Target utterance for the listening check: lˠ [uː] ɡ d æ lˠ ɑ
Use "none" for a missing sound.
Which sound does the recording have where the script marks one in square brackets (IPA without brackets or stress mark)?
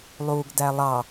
uː